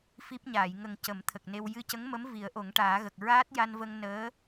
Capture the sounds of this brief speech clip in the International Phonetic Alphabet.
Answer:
f i˦˥ p̚ ɲ aː˨˩˨ j ŋ ə˨˩ ŋ c ə˨˩˦ m t̪ʰ ə˨˩ k̚ n e˧ w j ɨ˧ c ə˧˥ ŋ m ə˧˥ m v i˨˩˦ ə̯ ʔ o˨˩˦ ŋ ʈ aː˨˩˦ ɣ ə˨˩ k̚ ɹ aː˦˥ t̚ j a˧ n v ə˧ ŋ n əː˧˥

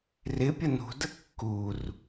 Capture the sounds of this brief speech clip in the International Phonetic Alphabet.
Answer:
r ɪ pʲ ə n ṳ d ə kː u r

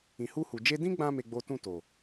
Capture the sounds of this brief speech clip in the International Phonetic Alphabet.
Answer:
ĩ˨ h u˧ h u˨ d͡ʒ e˧ d ĩ˦ ɡ͡b ã˧ m e˦ ɡ͡b o˦ t ũ˦˨ t o˨

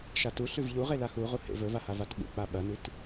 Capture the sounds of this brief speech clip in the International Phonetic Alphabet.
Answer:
ʃ a t u ɬ ʉ v ʎ u ʁ e l a x u ʁ u h ḛ v ɵ v a h a v a t ɓ ṵ k͡p a ɓ ɐ n ʉ t

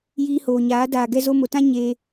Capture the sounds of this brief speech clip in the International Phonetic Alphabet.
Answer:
j iː˧ h oː˨ ɲ aː˨˦ d aː˨ ɡ ɛ˧ z o˧ m o˨ t ã˦ ɲ e˧

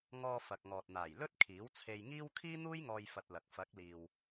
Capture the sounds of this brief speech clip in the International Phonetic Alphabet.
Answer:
ŋ ɔː˧ f ɐ˨ k̚ ŋ ɔː˨ t̚ n̪ aː˨˩ j l ɵ˥ t̚ kʰ iː˨˥ w t͡sʰ e˧ j ŋ iː˥ w kʰ iː˥ n̪ uː˥ j ŋ ɔː˧ j f ɐ˧ t̚ l ɐ˨ k̚ f ɐ˨˥ k̚ l iː˨ w

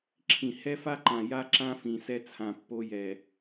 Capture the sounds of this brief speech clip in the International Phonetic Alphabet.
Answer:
ǁʰ ĩ˨ h ɛ˦ f a˦ ǃ ã˨ j a˦ ǁ ã˦ f ĩ˨ s ɛ˦ t͡sʰ ã˨ pː o˦ j ɛ˨

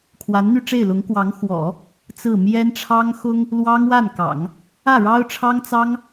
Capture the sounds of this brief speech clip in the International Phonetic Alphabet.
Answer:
kʰ w a˧˥ n n̪ y˥˧ ʈ͡ʂ e˥˩ ɪ̯ l ʊ˧˥ ŋ k w ɑ˧˥ ŋ x w ɔ̰˨˩˦ | t͡s ɹ̩˥˩ m j ɛ˥ n ʈ͡ʂʰ ɑ˥ ŋ x ʊ˥ ŋ | l w ɑ˥ ŋ w a˥˩ n k ɑ̰˨˩˦ ŋ | ä˥˩ ɻ ɑ˥ ʊ̯ ʈ͡ʂʰ ɑ˥ ŋ t͡s ɑ˥ ŋ

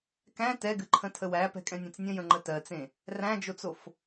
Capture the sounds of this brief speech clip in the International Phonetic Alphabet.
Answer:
k æ̃ t ɛ ɡ ɨ ǃʰ ə̃ tʰ ə w æ p ɛ̤ kʼ ɛ̃ nʲ ɛ̃ t͡s nʲ ə̃ j ə̃ ŋ͡ǃ ə t ɜ t͡s ẽ | r æ̃ d͡ʒ o t͡s o f

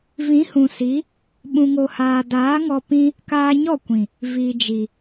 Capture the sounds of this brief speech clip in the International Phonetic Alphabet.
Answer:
v ĩ˨˦ h ũ˨ s i˨˦ | ɓ ũ˨ ŋ o˨ h aː˨ d aː˨˦ ŋ ɔ˧ p ĩ˦ | k aː˧ ɲ ɔ˦˨ kʷ ĩ˨ | v i˨ d͡ʒ i˨

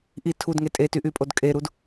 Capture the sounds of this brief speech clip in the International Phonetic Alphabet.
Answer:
ʔ i tʰ u d ŋ e tʼ e t y ʔ y pʼ o d kʼ e ɾ u d

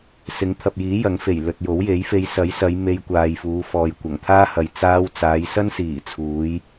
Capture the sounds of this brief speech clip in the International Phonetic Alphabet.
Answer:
s ɪ˨˥ ŋ t̪ʰ ɐ˨ p̚ j iː˨˥ j ɐ˨˥ ŋ f e˨˩ j l ɵ˨ t̚ j o˨˥ w j e˨˥ j f e˧ j s ɐ˨˥ j s ɐ˨˧ j m e˧ j kʷ aː˨ j f uː˨˧ f ɔː˨ j kʷ ɐ˨˩ ŋ t̪ʰ aː˥ h ɐ˨ j t͡s aː˧ w t͡s aː˨˧ j s ɐ˥ n s iː˨˩ t͡sʰ uː˨˧ j

